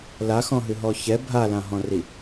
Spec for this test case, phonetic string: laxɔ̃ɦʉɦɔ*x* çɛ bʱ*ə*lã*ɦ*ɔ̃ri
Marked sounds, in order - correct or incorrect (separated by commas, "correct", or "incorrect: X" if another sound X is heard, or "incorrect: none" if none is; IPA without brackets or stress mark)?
incorrect: none, incorrect: a, correct